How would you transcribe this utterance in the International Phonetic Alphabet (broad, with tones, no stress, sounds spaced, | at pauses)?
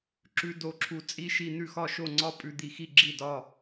ǁ ʉ˥˧ d o˥˧ ǁʰ u˥˩ t͡sʼ i˥˧ ʃ i˥˩ n̪ ʉ˥˧ x ɒ˥˩ ʃ o˥˩ ŋ͡ǀ ɒ˥˧ pʼ ʉ˥˩ d̪ i˥˩ x i˥˧ ɡ͡ǁ i˥˩ d ɒ˥˧